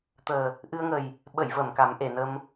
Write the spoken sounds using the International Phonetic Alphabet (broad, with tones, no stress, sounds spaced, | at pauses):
t̪ əː˨˩ | ʔ ɨ˧ ə̯ ŋ ə˨˩ j | ɓ ə˨˩˨ j v ə˨˩˨ m k a˨˩˦ m ʔ e˨˩˨ n ə˧ m